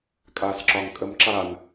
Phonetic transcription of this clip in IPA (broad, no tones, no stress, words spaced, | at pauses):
kʼasǁɒŋ kʼəmǁan